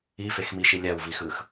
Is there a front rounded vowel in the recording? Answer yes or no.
no